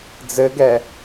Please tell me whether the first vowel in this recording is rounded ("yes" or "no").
no